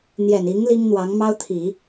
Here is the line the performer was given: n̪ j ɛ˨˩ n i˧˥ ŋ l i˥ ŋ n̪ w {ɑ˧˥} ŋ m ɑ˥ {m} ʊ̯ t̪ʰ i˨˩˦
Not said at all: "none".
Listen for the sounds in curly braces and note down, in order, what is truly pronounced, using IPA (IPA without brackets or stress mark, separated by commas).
ɑ˧˥, none